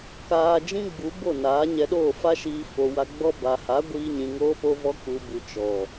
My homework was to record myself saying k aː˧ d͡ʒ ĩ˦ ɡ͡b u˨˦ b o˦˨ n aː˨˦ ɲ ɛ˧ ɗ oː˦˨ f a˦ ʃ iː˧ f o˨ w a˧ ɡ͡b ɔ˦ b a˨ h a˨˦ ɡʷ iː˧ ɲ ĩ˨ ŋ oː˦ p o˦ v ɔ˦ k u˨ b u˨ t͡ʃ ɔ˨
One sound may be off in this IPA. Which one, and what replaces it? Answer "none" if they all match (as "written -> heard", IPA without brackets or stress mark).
none